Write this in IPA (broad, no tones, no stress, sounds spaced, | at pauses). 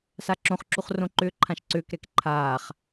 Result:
s a ǁ õ χ ǁ u χ r õ ǃ ʏː ǃʰ ã ʃ ǀ ʏː k ɾ ɛ k ǃʰ aː χ